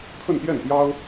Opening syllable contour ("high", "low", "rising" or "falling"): falling